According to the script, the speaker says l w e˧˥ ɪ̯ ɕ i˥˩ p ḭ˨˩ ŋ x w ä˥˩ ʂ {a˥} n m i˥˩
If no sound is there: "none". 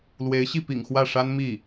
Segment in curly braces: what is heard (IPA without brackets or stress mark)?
a˥